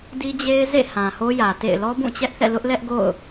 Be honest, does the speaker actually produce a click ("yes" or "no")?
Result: no